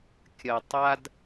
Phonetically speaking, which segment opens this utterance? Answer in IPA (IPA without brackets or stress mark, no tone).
kʲ